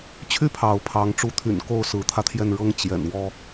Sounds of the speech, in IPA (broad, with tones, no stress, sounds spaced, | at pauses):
t͡ɕʰ y˥˩ pʰ ɑ˧˥ ʊ̯ pʰ ɑ˧˥ ŋ ʈ͡ʂ u˧˥ t̪ʰ y̰˨˩ n k o˥˩ ʊ̯ s ɹ̩˧˥ t̪ʰ ä˧ t̪ʰ j ɛ˥˩ n ɻ ɤ˥ ŋ t͡ɕ j ɛ̰˨˩ n w ɔ˥